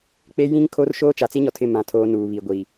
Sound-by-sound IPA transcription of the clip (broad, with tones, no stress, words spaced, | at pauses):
k͡pe˦ jĩ˦ŋ kʰo˦rʃoː˦ t͡ʃa˨t͡si˦ɲɔ˨tʰɪ˦˨ mã˨tʰoː˨ nuː˨βi˨ɡʷiː˨